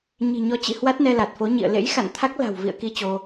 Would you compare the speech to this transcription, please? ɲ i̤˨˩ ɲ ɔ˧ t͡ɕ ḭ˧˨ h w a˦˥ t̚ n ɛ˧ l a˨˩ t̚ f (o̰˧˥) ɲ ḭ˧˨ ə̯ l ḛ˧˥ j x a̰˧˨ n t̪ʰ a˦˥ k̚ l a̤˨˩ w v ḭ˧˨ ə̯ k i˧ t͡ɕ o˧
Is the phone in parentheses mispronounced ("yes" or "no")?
yes